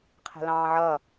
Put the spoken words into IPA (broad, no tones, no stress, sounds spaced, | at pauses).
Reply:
qʰ ɛ̤ l ɑ̃ː ʕ ʌ